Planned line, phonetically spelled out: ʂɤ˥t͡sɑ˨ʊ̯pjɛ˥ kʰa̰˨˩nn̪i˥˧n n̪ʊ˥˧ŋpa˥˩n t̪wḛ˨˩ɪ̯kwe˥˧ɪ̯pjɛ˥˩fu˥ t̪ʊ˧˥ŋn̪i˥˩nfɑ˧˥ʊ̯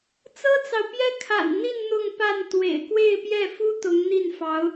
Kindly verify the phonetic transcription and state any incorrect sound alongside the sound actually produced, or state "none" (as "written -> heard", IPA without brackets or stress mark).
ʂ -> t͡s